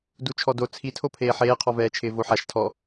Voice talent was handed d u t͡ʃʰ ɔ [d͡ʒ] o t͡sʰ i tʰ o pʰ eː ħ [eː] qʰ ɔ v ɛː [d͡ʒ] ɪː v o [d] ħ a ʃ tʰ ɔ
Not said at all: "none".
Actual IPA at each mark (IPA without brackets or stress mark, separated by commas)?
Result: d, eː, t͡ʃʰ, none